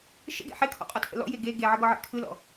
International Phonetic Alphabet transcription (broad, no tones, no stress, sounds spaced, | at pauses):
ʃ ə̰ ɡ ḛ ħ e kʰ ɔ̰ qʼ ɔ tʰ ə̰ l ɔ̰ j e ɡ e ɡ e ʕ ə ɡ ɔ ʕ ḛ kʰ ɯ l ɔ̰